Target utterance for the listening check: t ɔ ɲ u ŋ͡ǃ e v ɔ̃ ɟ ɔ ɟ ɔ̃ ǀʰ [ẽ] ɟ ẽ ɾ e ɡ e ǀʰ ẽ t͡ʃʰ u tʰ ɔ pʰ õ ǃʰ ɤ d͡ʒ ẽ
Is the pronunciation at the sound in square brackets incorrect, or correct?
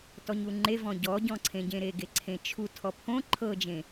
correct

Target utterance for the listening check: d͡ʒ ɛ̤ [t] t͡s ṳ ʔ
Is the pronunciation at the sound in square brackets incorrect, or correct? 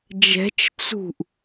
incorrect: t͡ʃ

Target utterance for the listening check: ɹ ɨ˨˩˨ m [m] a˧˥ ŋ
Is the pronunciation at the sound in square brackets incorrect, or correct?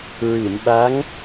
incorrect: ɓ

